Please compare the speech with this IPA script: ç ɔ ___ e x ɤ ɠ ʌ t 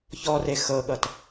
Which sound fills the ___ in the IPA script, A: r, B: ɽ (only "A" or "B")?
A